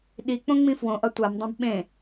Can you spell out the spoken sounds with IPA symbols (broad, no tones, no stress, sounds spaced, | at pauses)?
ɗ i k͡p õ ŋ͡m ĩ f w õ ʔ ʌ tʷ a m dˤ õ b ɓ ẽ